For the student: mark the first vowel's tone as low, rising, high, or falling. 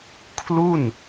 falling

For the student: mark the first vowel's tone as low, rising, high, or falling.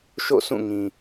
falling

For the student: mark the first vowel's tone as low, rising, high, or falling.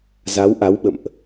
rising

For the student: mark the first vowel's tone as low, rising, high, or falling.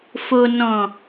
low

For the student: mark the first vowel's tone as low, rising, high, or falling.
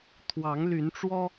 rising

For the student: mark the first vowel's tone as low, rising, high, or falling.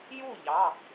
falling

